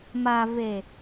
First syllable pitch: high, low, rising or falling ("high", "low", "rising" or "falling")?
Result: low